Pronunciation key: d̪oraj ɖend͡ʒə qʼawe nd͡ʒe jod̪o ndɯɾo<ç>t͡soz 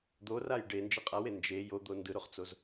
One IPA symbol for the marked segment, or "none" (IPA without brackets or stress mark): χ